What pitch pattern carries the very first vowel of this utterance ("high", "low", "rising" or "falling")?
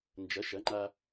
rising